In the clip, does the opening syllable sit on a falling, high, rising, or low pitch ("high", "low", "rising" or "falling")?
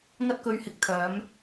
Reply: high